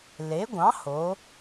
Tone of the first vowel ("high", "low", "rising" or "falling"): rising